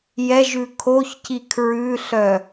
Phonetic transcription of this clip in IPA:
jɛʒʉ kʰoçci kʰɹʉɬœ

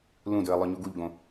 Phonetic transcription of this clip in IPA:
lũdɵə̯ lˠœɲuɡuʎɡõ

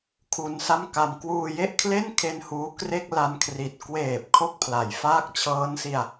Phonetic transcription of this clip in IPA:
kʰu˧nsa˥˩mka˧m kwuː˧je˥˩ʔkʰle˥˩nkʰe˧n huː˦˥kre˥˩k̚ la˧nkʰri˨˩t̚ kweː˨˩p̚ kʰo˥˩k̚pʰla˩˦jfaː˥˩k̚ t͡ɕʰɤː˦˥nsi˧a̯

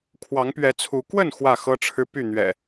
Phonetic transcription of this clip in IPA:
kʰwɑ˨˦ŋpɥɛ˨˦t͡sʰu˨˦ kwə˥˨n xwä˥˨xɤ˦ʈ͡ʂʰɻ̩˦ py˥˨n̪ɥɛ̰˨˩

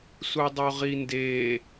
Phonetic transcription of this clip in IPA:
sudˤoʁinde

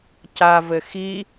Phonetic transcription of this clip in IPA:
cavɘ xi

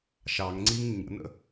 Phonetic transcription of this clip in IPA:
ʃɑŋŋ͡ǀiŋ ɲə̰nə̰

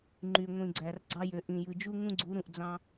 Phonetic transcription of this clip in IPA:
ŋ͡ǃy˨ ŋʷĩ˨ɡ͡ǀæ˨r ɡ͡ǀɑ˦jø˨ ʔĩ˨jɯ˨d͡ʒu˦ ŋũ˦ɡ͡ǀu˨˦ ɾũ˨ʔd͡zɑ̃˦

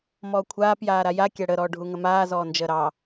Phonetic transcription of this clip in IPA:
mɔːkʷʰaːp jaːɾaja kʲaɽə ɾɔːɖʱuŋəmaː zɔːnd͡ʒəːɾɑ

